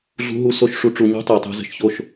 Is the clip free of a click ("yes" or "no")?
yes